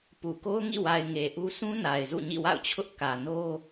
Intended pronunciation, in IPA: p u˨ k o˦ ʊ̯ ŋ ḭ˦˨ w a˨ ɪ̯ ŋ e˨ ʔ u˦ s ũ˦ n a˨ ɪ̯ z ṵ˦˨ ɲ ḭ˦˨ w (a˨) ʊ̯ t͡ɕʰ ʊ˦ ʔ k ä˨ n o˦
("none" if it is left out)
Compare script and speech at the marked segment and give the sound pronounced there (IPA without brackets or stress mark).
a̰˦˨